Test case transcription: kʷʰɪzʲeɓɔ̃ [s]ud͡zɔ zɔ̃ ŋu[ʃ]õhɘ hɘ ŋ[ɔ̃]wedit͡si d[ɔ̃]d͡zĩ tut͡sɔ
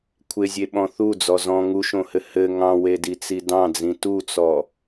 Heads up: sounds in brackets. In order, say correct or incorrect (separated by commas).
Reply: incorrect, correct, incorrect, incorrect